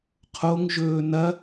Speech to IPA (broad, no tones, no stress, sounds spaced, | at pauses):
qʰ o ŋ ʒ ɵː n ɐ